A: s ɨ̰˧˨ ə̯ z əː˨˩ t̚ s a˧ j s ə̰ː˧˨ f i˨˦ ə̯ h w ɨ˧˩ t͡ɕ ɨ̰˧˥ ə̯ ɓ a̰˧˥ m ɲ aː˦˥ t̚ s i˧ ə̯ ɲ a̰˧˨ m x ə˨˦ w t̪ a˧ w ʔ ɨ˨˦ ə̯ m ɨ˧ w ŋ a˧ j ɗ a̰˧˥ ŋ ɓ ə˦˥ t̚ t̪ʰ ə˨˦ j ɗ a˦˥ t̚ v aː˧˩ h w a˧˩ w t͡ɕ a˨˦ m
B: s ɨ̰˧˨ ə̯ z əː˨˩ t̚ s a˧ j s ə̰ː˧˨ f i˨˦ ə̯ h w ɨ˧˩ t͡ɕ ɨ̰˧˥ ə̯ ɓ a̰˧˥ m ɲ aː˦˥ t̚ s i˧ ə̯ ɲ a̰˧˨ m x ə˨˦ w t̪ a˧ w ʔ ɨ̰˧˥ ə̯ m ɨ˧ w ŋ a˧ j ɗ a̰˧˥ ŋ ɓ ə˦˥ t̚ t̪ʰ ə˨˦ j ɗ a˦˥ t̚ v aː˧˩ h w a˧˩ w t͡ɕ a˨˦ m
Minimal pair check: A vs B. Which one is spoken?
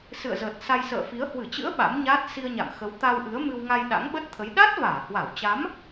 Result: A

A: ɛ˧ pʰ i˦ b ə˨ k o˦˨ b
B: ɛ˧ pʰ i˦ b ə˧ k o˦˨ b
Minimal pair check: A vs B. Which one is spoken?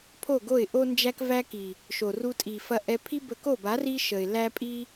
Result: B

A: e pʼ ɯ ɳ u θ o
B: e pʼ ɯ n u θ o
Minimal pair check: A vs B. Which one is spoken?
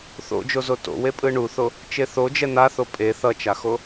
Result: A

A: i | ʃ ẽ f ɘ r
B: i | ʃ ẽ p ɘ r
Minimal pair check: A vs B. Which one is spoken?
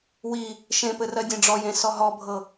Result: B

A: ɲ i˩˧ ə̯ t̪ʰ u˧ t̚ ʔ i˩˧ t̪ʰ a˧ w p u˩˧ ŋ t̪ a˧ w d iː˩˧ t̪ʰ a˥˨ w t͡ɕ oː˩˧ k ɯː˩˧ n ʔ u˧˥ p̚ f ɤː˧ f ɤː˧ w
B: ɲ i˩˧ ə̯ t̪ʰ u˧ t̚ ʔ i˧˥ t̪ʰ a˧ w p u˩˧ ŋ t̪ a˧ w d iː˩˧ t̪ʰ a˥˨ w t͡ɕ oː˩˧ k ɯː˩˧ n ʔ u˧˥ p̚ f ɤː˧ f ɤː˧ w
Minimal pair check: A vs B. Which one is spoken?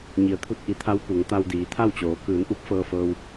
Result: A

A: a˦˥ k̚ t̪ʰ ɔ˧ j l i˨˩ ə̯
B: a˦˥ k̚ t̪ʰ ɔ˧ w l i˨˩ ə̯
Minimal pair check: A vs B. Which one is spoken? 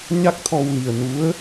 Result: B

